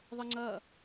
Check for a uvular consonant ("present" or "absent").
absent